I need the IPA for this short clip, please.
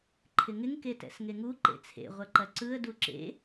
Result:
ǃʰ ɪ ŋ ɪ ŋ k e t ɛ̰ s ŋ e ŋ u ǃ ḛ t͡sʰ ḛ ʁʷ ɐ ǃ ɐ ǀ ɯ ə̯ d u ǁ ḛ

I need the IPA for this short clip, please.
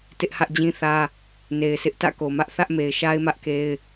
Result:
t ɪ˦ ʔ h ä˦ ʔ d͡ʑ ĩ˦ θ ä˦ | n e˨ ɪ̯ s ɪ˦ ʔ t ä̰˦˨ k o˨ m ä˦ ʔ θ ä˦ ʔ m e˨ ɪ̯ ʃ a˦ ɪ̯ m ä˦ ʔ k e˦ ɪ̯

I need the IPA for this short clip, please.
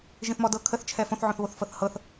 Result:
ʒ ĩ θ m ɔ d ɤ kʰ ə θ t͡ʃʰ ɛ f õ θ ʕ õ θ β o θ f ɤ θ h ɤ θ

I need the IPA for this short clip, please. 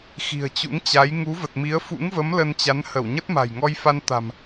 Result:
x i̤˨˩ ə̯ t͡ɕ ṵ˧˥ ŋ t͡ɕ a˨˦ j ŋ u˨˦ v ə˨˩ t̚ m i˨˦ ə̯ f ṵ˧˥ ŋ v ə˨˦ m l ə˧ n t͡ɕ a˨˦ n h ə˧˩ w ɲ ə˦˥ t̚ m a̤˨˩ j ŋ ɔ˧ j f a˧ n t̪ a̤˨˩ m

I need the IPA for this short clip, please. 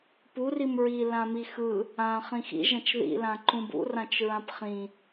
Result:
p u r i m ɹ i l ã m i x ɯ | ã χ ĩ x ḭ ʒ ɐ̃ t͡ʃ ð ḭ l ã ǃ ũ b ṵ r ã t͡ʃ ɹ ã p χ ĩ

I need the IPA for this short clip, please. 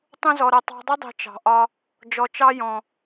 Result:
tˤ ũ˧ z ɔ˨ ɾ ʌ˨ tˤ ɑ̤˧ dˤ ʌ˦ dˤ i̤˨ t͡ʃ ɑ̤˨ ʔ ɒ˧ | d͡ʒ ɔ˨ t͡ʃ ɑ˧ j ɔ̃˨

